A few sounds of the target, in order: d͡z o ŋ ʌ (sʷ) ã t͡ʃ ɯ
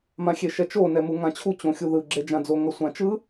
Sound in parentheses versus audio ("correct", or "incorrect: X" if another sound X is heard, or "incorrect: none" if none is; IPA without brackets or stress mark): correct